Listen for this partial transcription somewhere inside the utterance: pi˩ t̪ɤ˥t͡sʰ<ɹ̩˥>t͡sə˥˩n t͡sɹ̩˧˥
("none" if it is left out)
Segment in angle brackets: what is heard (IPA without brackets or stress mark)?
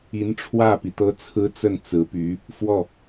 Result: ɹ̩˥